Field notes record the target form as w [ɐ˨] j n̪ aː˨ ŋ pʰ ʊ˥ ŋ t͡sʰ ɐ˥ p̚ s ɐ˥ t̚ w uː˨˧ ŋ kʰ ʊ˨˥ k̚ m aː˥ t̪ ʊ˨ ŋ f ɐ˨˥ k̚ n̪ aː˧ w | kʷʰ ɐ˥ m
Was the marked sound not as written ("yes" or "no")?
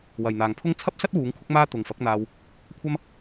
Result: no